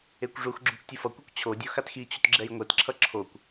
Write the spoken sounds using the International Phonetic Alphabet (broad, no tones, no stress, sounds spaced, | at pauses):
e kʷ ʐ u x ɡ͡ǁ u k tʲ o f ʌ kʷ ɯ kʷ t͡ɕʰ o dʲ o x a t x i t͡ɕ u t ɡ͡ǁ ɛ j ŋʷ ɛ t ǁʰ ʌ ǁʰ o kʷ